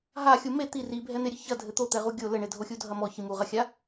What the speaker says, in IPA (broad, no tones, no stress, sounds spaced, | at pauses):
ɦ a xʲ u m e t̪ i r i bʱ ɛ n̪ e ɾʲ ɨ ç ɐ dʱ ɘ t̪ o t̪ ɛ ʁ u ɡʲ o l ɘ ɳ e dʱ o xʲ u dʱ ɐ m ɔ ç i m u ʁ ɐ xʲ a